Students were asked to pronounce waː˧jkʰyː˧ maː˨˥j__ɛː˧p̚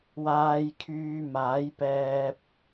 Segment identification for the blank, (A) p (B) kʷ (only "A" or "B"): A